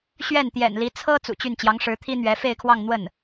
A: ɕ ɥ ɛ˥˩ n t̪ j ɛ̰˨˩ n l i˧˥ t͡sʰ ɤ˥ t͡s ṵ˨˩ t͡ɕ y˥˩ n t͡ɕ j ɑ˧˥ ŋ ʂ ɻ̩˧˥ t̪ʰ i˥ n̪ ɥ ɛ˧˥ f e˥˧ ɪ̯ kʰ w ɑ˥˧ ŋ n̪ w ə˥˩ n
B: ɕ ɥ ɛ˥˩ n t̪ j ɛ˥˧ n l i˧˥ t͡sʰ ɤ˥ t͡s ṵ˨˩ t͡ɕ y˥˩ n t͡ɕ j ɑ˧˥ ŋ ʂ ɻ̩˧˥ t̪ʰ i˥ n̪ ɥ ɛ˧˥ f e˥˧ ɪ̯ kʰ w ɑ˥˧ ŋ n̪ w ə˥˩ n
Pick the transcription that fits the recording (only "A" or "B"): A